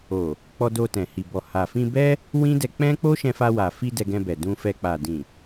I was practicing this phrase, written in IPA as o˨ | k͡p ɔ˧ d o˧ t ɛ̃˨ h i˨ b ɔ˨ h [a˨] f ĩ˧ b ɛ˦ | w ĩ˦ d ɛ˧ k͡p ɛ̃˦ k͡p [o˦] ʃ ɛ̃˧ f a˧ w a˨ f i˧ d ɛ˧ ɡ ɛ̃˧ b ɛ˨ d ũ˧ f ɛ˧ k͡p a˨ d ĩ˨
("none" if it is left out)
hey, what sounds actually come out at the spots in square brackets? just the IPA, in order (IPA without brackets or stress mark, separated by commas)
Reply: a˨, o˦